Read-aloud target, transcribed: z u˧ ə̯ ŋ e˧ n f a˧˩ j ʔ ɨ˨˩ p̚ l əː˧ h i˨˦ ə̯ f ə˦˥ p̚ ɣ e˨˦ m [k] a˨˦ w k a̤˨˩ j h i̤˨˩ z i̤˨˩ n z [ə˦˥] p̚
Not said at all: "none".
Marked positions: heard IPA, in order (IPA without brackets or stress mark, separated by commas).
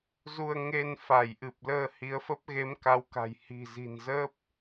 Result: k, ə˦˥